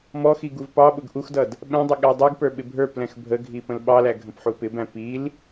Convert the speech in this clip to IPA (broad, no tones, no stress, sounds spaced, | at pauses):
m ɔ x i ɡ u v p ɑ ɓ ʊ ɡ ʔ u x d ʌ d | ɓ ɛ̃ dˤ ɪ ɠ æ dˤ u ɡ p ə˞ ɓ ɪ bʱ ə˞ p l ɛ̃ x bʱ ə ɡʱ i p ə̃ l ɓ ɑ l æ ɡʱ ə̃ p ħ u p ɪ b æ̃ p i l